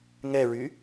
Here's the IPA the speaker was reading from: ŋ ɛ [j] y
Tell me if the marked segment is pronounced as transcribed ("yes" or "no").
no